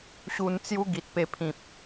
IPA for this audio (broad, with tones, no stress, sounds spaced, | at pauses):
ɕ u˧ n t͡s j u˦ ɡ i˨ t̚ p e˧ pʰ ĩ˨ p̚